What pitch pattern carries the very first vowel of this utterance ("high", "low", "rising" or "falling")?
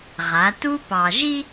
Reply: rising